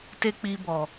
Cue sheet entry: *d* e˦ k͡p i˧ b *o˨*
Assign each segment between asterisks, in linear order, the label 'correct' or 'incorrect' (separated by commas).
incorrect, incorrect